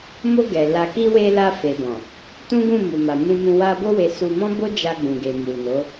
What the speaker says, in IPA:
m o˧ ɡ ɛ˨ l a˨ k i˧ w e˧ l a˧ f e˨ b ɔ̃˨ | t ũ˦ ɡ ũ˦˨ m u˨ m a˨ m ũ˧ m ũ˧ w a˧ b o˦ w e˧ s u˧ m ɔ̃˦ b o˦ d͡ʒ a˧ ɡ͡b ũ˨ ɡ e˨ m u˨ n o˨˦

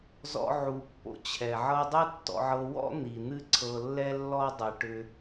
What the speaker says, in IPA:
z ɔ̰˧ ʕ u˨ pː o̰˧ t͡ɕʰ ɛ˨ ʕ ɤ˦ dˤ ɨ˦ tː ɔ̰˧ ʕ ɤ˧ w ɔ̰˦ n̪ i˨ n̪ ɨ˦ ǀʰ ɤ˧ lː ɛ˦ lː ɔ˦ dˤ ɯ˨ ʈ ʏ˦

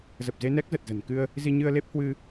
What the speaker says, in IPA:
z ə˨˩ p̚ z e˧ n ɛ˦˥ k̚ z ə˨˩ t̚ z ə̤˨˩ n k ɨ˧ ə̯ | z i˧ ɲ ɨ˧ ə̯ l e˦˥ p̚ h w ɨ˧

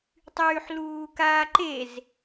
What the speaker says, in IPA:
tˤ yː ħ l uː k aː ǃ e z

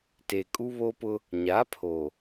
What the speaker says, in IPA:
t e˨ kʼ u˦ β o˦ p ʊ˦ | ɲ a˨˦ pʰ oː˨

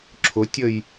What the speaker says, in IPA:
ǁʰ ʊ tʲ ə j

